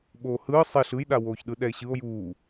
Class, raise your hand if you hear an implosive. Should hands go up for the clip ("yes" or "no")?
yes